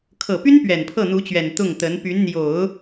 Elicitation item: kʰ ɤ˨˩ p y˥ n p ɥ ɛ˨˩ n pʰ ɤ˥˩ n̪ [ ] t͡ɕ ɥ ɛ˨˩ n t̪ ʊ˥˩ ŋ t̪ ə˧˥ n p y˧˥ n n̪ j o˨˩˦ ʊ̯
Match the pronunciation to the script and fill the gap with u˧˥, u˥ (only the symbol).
u˧˥